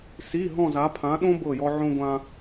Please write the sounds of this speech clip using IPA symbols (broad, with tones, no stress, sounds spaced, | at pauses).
s i˧˥˧ ɦ ɔ̃˥˧ z a˧˥ pʰ ã˧˥ ɗ õ˥ b ɤ˥˧ j ɔ˥ ʕ õ˥ ɡʷ ã˥